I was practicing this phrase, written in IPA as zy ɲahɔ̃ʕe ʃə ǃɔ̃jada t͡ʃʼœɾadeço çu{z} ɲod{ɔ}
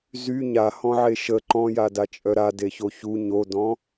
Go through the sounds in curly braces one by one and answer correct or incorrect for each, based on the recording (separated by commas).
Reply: incorrect, incorrect